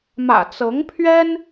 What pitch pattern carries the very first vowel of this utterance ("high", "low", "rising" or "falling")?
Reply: low